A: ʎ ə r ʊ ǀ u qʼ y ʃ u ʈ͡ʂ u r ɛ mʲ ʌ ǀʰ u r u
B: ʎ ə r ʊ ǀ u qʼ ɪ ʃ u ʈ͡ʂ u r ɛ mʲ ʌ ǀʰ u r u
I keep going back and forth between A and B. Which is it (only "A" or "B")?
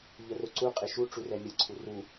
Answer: B